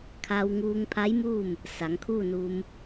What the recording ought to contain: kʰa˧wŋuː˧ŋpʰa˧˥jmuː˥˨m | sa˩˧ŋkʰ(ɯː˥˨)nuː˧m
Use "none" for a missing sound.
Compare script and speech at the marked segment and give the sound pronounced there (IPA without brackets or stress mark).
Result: uː˥˨